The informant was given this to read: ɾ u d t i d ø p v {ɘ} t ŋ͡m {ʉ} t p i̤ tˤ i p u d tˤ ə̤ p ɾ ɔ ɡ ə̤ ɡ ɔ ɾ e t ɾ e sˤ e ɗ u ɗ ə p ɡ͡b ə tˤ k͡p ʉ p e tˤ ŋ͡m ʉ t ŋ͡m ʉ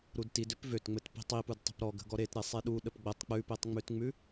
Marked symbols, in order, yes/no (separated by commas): no, no